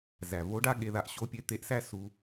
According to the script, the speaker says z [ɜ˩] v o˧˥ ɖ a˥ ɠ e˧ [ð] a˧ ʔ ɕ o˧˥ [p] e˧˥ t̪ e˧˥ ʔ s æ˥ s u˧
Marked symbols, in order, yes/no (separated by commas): no, yes, no